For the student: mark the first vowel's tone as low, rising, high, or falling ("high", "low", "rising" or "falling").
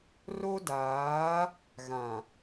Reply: high